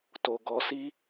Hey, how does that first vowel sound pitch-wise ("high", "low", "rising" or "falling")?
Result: low